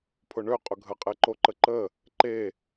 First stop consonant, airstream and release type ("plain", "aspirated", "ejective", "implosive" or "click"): aspirated